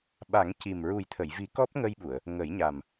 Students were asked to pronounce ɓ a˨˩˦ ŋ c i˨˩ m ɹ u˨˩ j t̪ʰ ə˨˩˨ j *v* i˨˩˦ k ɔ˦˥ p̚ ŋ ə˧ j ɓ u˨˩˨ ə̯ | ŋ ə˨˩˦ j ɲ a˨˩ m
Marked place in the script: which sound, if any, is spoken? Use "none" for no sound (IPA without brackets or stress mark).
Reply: v